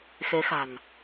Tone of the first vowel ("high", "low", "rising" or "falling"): rising